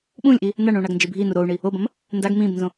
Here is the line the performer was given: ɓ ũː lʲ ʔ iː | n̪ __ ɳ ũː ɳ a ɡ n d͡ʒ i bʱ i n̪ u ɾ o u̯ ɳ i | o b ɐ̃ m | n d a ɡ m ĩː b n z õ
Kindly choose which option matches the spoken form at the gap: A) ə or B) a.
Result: B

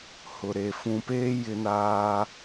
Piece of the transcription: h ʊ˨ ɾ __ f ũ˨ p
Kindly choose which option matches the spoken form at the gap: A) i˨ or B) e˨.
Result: B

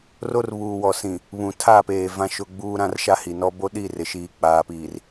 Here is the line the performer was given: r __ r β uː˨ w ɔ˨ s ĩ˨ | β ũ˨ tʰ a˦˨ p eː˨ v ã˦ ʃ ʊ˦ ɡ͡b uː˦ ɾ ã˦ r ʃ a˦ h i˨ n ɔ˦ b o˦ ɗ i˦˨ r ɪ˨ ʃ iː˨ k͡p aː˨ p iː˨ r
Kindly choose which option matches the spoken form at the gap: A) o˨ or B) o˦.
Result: B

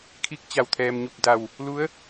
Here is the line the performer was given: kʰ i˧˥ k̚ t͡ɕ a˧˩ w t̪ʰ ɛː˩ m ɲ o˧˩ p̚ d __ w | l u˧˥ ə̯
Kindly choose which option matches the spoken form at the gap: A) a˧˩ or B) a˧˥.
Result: A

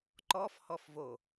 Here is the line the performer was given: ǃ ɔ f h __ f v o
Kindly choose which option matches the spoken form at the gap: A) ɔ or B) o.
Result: A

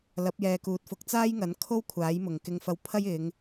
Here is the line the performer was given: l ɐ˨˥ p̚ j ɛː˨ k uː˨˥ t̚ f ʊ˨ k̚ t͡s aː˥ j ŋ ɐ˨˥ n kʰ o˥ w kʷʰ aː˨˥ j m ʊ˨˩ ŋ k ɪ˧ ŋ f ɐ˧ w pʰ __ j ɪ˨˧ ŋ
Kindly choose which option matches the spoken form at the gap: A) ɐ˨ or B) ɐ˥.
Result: B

